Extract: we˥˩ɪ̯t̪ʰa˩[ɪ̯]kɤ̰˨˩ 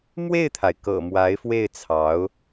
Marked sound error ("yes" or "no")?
no